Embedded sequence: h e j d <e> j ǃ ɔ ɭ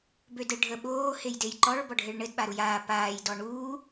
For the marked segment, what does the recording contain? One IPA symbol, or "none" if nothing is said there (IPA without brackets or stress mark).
e